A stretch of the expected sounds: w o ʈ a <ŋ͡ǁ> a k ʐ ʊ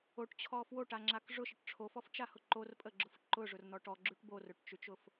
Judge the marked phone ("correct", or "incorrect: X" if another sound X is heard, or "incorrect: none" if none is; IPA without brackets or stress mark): correct